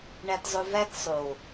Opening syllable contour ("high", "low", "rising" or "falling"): low